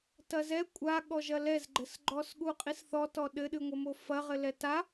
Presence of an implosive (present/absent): present